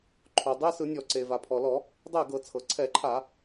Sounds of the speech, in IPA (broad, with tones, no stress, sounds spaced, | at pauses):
ǃʰ o˩ dˤ e˧˥˧ s ɯ˧˩˧ nʲ ɔ˧˩˧ ǀ e˩ v a˩ pʰ ɔ˩ l ɔ˧˩˧ | dˤ ɛ˥˩ ɡ ɤ˧˩˧ t͡sʰ ɤ˩ ǀʰ ɛ˧˩˧ ǃʰ a˧˩˧